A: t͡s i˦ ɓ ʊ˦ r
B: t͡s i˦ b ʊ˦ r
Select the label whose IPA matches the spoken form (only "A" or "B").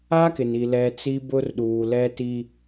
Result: B